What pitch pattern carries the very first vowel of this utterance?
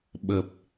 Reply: low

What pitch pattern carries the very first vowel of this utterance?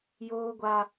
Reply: high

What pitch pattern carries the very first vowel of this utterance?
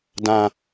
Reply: low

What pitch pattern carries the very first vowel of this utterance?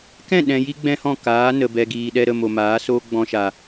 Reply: falling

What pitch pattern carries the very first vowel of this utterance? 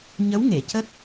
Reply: rising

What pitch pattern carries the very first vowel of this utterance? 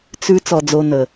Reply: high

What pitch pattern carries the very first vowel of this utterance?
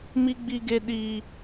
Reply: high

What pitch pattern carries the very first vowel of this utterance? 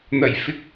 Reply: low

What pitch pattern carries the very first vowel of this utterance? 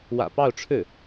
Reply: low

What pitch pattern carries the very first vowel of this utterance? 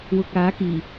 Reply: low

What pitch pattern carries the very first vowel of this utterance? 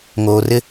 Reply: low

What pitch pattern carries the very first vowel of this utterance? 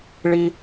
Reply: high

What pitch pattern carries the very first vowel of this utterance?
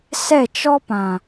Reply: falling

